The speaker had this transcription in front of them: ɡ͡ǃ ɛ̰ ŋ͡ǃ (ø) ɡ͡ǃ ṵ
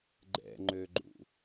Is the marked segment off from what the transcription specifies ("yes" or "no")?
no